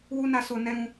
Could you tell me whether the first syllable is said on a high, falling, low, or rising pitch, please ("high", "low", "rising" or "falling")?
high